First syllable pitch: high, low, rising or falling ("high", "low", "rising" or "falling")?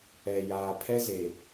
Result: low